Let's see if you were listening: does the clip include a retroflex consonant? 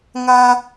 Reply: no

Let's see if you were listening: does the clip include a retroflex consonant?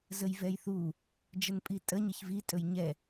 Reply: no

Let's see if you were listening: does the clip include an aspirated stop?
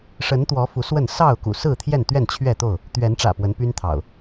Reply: yes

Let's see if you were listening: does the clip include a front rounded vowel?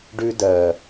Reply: no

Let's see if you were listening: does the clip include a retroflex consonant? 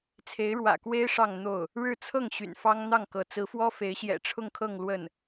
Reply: yes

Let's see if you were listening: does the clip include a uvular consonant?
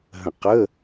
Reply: yes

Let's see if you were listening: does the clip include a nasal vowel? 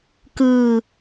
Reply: no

